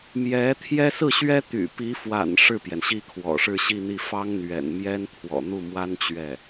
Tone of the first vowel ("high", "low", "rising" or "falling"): rising